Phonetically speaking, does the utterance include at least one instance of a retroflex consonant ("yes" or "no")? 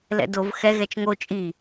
no